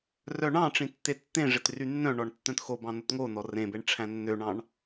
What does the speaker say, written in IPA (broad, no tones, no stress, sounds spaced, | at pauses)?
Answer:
r œ ɳ ɑ̃ ʈ͡ʂ ĩ tː e tː ẽ ʐ e t r y nː œ̃ ɳ ɔ ɳ tː œ̃ t x o b ɑ̃ n o t ŋ o n ɔ r ẽ b e ɳ ʈ͡ʂʰ æ̃ nː ø ɳ ɑ̃ ɳ